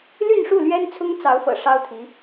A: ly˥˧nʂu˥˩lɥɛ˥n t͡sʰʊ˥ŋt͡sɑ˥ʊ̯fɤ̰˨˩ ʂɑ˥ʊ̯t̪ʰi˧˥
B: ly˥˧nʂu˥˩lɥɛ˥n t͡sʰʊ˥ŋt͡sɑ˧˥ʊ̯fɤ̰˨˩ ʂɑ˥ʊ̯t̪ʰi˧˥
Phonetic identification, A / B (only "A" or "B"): B